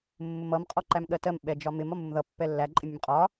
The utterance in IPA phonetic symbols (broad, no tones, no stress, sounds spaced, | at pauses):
mː ʊ m ʌ m qʼ ɔ ǃ æ m ɠ ɜ t ɜ m ɓ ɛ d͡ʒ ɒ m ɪ m ɒ m ʊ m ð ʌ pː ɛ lː æ ǃʼ ɪ mʲ ʌ m qʼ ɒ